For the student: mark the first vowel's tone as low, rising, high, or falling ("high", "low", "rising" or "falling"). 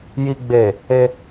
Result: low